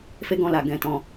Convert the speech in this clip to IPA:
f e˦ ɡ ɔ̃˧ l a˨ ɡ ɛ̃˧ t ɔ̃˧

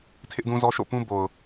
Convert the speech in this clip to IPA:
tʰ ɪ˦ ʔ d ũ˦ z ɔ˦ ʃ o̰˦˨ p ũ˦ b o˨ ʊ̯

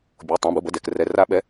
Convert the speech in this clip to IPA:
bʲ o˩˧˩ tˤ ã˩˧˩ b ɯ˩˧˩ b ə˩˧˩ d ɛ˩˧˩ k r ɛ˩˧˩ r a˨˩˦ ɓ ɛ˩˧˩

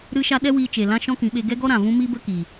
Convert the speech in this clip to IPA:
ɾ ɨ˦ ʃ a˦ ɗ ɛ˦ w iː˧ t͡ʃ e˨ l ã˦ ʃ ɔ̃˦ k ĩ˨˦ ɓ e˧ ɡ ɛ˦ ɡ ɔ˦ ɾ ã˨ v ũ˦ m i˦ b ə˦ k i˨

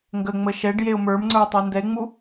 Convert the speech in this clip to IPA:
ŋ ɡ ə ŋ͡m ə ʃ ɛ ɖ j e ʊ̯ m ə˞ m ŋ͡ǀ ə˞ ʊ̯ tˤ ə˞ n d ɛ ɪ̯ ŋ͡m u

